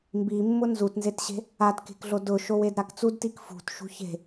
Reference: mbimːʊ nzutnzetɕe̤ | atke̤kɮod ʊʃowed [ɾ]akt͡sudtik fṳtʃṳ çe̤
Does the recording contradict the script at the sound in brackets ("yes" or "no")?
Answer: no